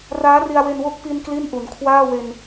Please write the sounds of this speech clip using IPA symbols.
raː˦˥ri˧a̯we˧nwo˦˥k̚ pi˧n kli˥˩nʔu˩˦n kʰwaː˥˩we˧n

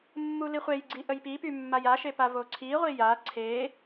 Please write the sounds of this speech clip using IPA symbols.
mːuliχʷejɡ͡ǀi ʔəjpipy mːajaʃe pavoǀʰiʁʷi ja ǀʰe

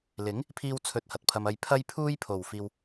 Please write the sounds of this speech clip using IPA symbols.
lɪ˨˥ŋ | pʰiː˥wt͡sʰɵ˧t̚hɐ˨t̚pʰɐ˧m ɐ˧jpʰɐ˥jpʰuː˥jpʰo˨w fiː˧w

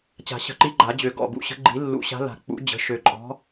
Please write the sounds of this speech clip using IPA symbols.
t͡ɕa̤˨˩˦ɕə̤˨˩˦ǃi˨˥ ɡ͡ǃa˨˩˦d͡ʑø˨˩˦ ɡɔ̰˩˧˩bṵ˨˥ɕə̤˨˥ ɡ͡ǃi˨˩˦ lːṵ˨˩˦ ɕa̤˨˥la̤˨˩˦ k͡pṵ˨˩˦ d͡ʑə̤˩˧˩ʃø˨˩˦ǃʼɔ̤˨˥

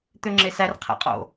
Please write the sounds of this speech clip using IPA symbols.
t̪øŋ͡ǁesær qʰæ̰qʼo̰

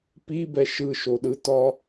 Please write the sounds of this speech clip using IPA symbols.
pibɛ ʃɯʃoɗɯtɒ

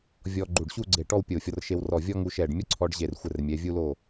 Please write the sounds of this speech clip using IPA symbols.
vʲɔ˧ ɡ͡ǃu˧˩ɖɕu˥˧ɡ͡ǀe˧˩ʈɔ˥˧w pʲo˧˩ fʲɔ˧rʃe˧wrɔ˧˩ vʲɔ˥ŋu˧ ʃɛ˧˩ɖ mʲɔ˥ǀʰɔ˧ɖ ʑe˧˩rxʷɘ˧˩rmʲɛ˩˧ vʲu˧lo˧˩

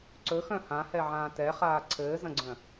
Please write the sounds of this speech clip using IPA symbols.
ǀɵxœ̃ hãhɛʕãː tɛχaː ǀʰɘːzɐ̃ɡ͡ǀœ̃

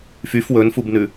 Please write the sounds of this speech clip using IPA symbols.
fyf wɵnfubnʉ

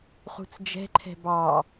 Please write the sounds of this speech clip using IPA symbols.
χṳt͡sd͡ʒɛ̤ǃʰɛ̤ bɑ

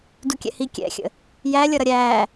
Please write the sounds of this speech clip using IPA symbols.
dukʲɛ̰hi kʲɛ̰xʲə̰ | jælʲʌ ɾʌɾʲæː

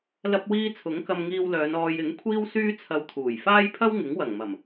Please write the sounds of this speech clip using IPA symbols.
lɐ˧p̚wiː˧ t͡sʰʊ˨˥ŋkɐ˧mŋiː˧wlœː˨˧n ɔː˨jɪ˨˥ŋ kʷʰiː˥wsyː˥t͡sʰɐ˧wt̪ʰuː˨˩j faː˥jpʰɐ˥wŋɪ˨˥ŋ wɐ˨˩ŋmɐ˨˩m

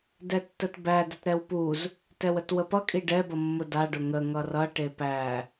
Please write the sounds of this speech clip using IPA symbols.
dɛtːətbæ dətɾɛwpuz | tɛwətwəpʌ kʼiɖɛ bʌmːʊda ɖʊŋə ŋʌrʌ ʈepæ

